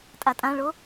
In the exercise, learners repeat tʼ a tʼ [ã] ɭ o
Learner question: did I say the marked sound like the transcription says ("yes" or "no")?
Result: yes